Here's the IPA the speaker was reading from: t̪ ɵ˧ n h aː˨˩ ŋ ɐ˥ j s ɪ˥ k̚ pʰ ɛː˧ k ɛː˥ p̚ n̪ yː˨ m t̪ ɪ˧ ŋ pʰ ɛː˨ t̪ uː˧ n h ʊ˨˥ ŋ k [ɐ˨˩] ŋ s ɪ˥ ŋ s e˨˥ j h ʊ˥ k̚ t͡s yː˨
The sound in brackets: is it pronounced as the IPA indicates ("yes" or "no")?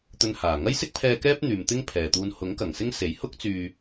yes